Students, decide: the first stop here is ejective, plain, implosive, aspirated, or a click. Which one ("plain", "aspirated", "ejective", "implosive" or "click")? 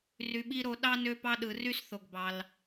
implosive